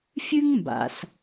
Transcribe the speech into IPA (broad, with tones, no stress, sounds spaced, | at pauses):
fʲ ʉ˥ ŋ m b a̰˩ s